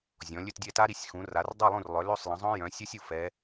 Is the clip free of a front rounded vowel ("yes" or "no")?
no